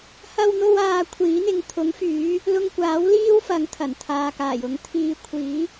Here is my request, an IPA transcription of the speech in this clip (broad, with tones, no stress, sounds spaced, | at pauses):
h ɐ˧ w n̪ o˧ w aː˨ kʷʰ iː˨˥ n̪ ɪ˨˧ ŋ t̪ʰ ʊ˨˥ ŋ f yː˨˥ | l ʊ˧ ŋ kʷ aː˨˥ w l iː˥ w f ɐ˨˧ ŋ t̪ʰ ɐ˨˩ n t̪ʰ aː˨ k aː˨˩ j ʊ˨˥ ŋ t̪ʰ iː˨˧ kʷʰ iː˨˥